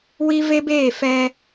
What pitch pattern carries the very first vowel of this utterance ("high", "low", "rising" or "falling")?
high